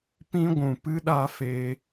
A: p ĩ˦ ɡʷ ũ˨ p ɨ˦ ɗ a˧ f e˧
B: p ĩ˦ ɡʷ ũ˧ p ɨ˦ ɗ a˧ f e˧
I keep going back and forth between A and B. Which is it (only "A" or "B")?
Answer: A